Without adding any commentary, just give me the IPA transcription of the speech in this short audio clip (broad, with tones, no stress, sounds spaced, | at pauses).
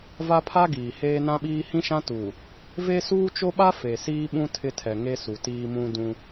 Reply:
v a˦ pʰ a˦ ɡ iː˨ h eː˦ n ã˦ ɓ iː˦ h ĩ˦ ʃ ã˦ t uː˨ | v e˦ s uː˦ t͡ʃ o˦ ɓ a˦ f e˨ s iː˦ ɓ ũ˦ tʰ ɪ˦ tʰ ɛ˨ ŋ e˦ s u˨ t iː˦ m ũ˦ d ũ˦